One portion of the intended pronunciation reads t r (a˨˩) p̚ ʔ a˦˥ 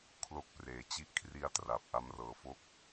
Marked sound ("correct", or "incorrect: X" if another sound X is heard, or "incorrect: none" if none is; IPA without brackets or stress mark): correct